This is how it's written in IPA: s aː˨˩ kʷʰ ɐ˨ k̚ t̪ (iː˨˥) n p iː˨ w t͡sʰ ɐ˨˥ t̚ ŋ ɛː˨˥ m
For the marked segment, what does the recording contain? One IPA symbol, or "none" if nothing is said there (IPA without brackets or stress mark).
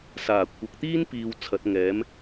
iː˥